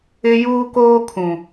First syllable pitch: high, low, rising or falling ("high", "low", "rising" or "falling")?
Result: high